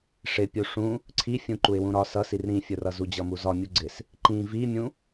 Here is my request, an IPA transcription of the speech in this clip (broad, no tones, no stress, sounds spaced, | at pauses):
ʂ ɪ pʲ u ʂ ũ | ǀʰ i fʲ ũ ǃ u ɪ̯ w ũ ɾ ɒ s ʌ s i r ɾ ĩ fʲ ʊ r ʌ z u d͡ʑ ʌ m u z ɒ mʲ u ɡ͡ǀ ɪ s | ǃ ĩ v i mʲ ũ